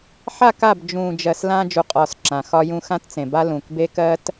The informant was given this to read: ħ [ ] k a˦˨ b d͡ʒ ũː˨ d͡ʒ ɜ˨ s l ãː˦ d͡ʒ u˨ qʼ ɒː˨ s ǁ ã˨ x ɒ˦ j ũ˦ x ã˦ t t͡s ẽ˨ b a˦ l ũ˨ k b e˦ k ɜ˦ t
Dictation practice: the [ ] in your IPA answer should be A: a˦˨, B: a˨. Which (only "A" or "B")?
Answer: A